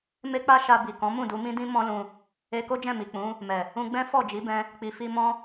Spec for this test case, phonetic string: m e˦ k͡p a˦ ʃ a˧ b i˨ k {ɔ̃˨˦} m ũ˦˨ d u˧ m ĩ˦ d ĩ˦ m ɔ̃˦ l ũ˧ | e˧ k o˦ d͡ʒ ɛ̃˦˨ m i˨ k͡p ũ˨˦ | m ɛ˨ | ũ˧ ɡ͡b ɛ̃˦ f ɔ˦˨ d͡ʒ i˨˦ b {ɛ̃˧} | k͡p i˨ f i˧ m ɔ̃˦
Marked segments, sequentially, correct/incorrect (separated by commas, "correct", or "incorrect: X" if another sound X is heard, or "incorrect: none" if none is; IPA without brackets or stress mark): correct, correct